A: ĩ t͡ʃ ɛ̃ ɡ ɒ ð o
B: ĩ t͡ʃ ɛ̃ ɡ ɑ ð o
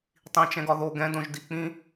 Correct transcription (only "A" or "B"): A